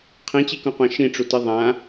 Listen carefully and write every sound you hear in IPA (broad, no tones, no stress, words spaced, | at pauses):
qʰĩt͡ɕikũqʷã ʃĩʈ͡ʂuti ðˤã